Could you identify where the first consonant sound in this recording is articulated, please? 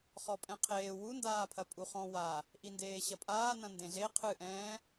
uvular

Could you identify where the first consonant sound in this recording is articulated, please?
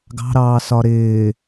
velar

